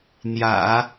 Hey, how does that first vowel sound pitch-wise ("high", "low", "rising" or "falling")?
low